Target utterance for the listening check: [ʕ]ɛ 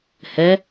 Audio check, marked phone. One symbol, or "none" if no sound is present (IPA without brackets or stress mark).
h